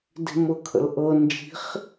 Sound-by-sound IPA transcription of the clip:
d i̤ m ʊ kʰ ə̰ l ʔ ɤ n d͡ʒ i̤ χ

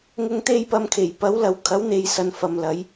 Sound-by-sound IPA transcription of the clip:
ŋ ʊ˧ ŋ t̪ e˧ j p ɐ˨ m kʰ e˨˩ j p ɐ˨˥ w l ɐ˨˥ w kʰ ɐ˨˥ w n̪ e˨ j s ɐ˧ n f ɐ˨ m l ɐ˨˥ j

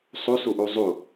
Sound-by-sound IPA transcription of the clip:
sˤ u s u ʔ u zˤ u

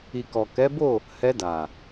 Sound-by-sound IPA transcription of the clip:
i˨ k ɔ˨ k ɛ˨˦ b o˦˨ | h ɛ˧ d a˨

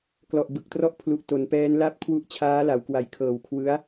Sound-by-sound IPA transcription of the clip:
k l ɔ˨˩ ʔ b ɯ˨˩ k̚ t r ɔ˦˥ ʔ pʰ l u˨˩ ʔ t o˩˦ n p ɛː˦˥ n l a˦˥ p̚ kʰ w u˦˥ ʔ t͡ɕʰ aː˦˥ l a˩˦ w k w a˨˩ j kʰ ɤː˨˩ w kʰ w ɯ˦˥ a̯

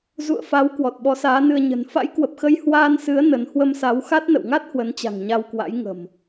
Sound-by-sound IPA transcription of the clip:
z ṵ˧˨ ə̯ f a˨˦ w k w ɔ˨˩ t̚ ɓ ɔ˨˦ s aː˨˦ n ɨ˧ ə̯ ɲ ə̤˨˩ n f a̰˧˥ j k w ə˨˩ p̚ x ə˧ j h w aː˧ n s ɨ˨˦ ə̯ n ə˨˦ n h w ə˧ m s a˨˦ w x a˦˥ t̚ n ə̰˧˨ w ŋ a˦˥ t̚ h w ə˨˦ n t͡ɕ a̤˨˩ ŋ ɲ a˧ w k w a̰˧˥ j ŋ ə̤˨˩ m

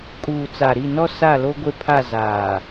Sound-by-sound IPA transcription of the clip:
kʼ uː˨ t͡s a˨ ɾ i˦˨ n ɔ˦ s a˦˨ l o˦ ɡʷ e˦ pʰ a˦˨ z aː˨

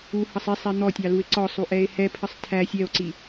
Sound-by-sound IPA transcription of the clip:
u h ʌ sˤ i sˤ ɛ n̪ ɔ tʲ ɑ l u e̯ ǀ ɔ sˤ u ʔ ɛ e̯ h ɛ pʰ ə sˤ tʰ æ sʲ ɛ o̯ ǀ i

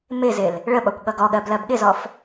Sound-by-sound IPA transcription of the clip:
m ɪ z ɪ l | ɭ ə ɓ ɒ kʷ ɠ ʌ ɡ ɔ ɠ ɜ b l ɜ b ɠ ɪ z ɔ f

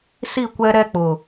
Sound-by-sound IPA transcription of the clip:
s i˦˨ kʷ ɛ˦ ɾ ɛ˦ k͡p ʊ˨

